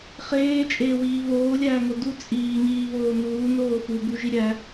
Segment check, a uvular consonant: present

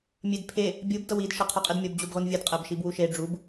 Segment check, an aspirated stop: present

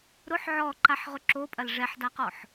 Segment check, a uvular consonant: present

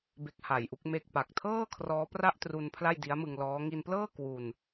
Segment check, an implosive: absent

